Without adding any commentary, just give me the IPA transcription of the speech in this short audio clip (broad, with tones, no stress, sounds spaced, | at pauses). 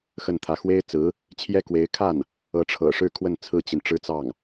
x ə˥˩ n t̪ʰ ä˧˥ x w e˥ ɪ̯ t͡s ɹ̩˧˥ | t͡ɕʰ j ɛ˥ k w e˧˥ ɪ̯ kʰ a˥˩ n | ɤ˧˥ ʈ͡ʂʰ ɤ̰˨˩ ʂ ɻ̩˥˧ kʰ w ə˥˩ n t͡sʰ ɹ̩˥ t͡ɕ i˨ n ʈ͡ʂ ɻ̩˥ t͡s ɑ˥˩ ŋ